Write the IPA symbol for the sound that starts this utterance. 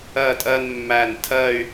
ɜ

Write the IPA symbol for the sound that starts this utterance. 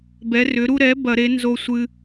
b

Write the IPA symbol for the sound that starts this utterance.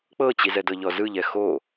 k͡p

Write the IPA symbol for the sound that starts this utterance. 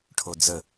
ʈʰ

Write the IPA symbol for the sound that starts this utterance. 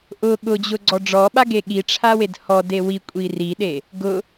ʔ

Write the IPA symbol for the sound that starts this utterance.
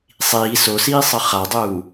sˤ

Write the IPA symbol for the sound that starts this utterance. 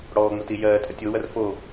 ɽ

